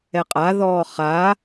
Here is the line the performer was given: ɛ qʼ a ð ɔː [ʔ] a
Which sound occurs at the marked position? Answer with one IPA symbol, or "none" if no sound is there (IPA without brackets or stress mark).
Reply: χ